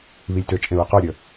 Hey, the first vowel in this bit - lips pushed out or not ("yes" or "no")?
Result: no